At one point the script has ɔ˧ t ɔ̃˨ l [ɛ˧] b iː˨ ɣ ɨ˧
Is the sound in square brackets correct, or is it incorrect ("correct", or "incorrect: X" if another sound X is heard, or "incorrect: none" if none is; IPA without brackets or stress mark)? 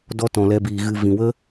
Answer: correct